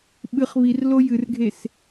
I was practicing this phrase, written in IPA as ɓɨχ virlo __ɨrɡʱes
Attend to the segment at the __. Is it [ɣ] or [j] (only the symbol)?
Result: j